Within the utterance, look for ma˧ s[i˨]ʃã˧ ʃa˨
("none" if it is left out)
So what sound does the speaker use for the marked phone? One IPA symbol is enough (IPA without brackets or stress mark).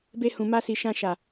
i˨